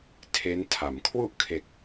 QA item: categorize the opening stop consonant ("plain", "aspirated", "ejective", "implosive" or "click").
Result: aspirated